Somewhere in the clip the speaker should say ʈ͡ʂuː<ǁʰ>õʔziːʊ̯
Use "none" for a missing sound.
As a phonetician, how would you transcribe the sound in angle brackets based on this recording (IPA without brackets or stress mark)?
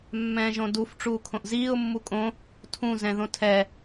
kʰ